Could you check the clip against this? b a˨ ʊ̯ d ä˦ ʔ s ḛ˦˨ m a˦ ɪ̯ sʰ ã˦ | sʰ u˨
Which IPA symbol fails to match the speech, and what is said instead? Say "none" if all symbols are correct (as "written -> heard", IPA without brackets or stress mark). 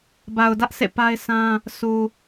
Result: m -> p